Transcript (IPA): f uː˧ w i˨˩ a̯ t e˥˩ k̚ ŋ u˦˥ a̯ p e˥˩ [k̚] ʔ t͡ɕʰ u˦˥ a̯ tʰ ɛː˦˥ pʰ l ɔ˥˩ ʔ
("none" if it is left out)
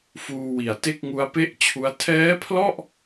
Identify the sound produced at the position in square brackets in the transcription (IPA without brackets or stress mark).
none